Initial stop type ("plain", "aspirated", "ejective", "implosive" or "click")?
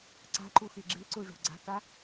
click